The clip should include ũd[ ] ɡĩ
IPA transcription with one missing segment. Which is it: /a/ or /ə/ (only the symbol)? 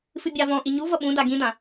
a